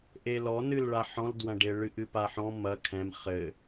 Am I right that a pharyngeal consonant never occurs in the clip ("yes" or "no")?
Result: no